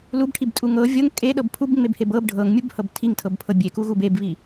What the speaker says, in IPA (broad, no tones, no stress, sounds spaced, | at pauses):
l u b ʈʰ i b tʼ u ŋ ɤ vʲ ɤ ŋ kʼ e ɗ ɤ b pʰ u b ŋ͡m e b h e b ɤ b ɖʱ ɤ ŋ mʲ u b h ɤ b tʰ i ŋ tʰ ɤ b pʰ ɤ bʲ e k u ɣ u b e b β i